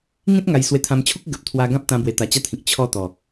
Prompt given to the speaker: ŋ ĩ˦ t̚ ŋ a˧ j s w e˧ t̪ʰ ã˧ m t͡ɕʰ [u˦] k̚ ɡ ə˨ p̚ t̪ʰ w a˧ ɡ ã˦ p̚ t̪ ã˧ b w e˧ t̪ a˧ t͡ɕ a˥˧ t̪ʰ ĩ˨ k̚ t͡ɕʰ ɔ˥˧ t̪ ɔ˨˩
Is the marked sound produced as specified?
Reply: yes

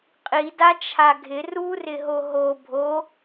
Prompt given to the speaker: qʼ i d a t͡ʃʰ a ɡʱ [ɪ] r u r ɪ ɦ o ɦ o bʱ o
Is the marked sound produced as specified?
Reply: yes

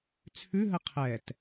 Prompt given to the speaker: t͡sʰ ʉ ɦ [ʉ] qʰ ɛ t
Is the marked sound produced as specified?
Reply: no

